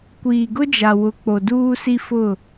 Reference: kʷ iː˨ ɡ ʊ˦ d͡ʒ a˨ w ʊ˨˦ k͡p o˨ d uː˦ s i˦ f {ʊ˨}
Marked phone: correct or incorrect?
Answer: incorrect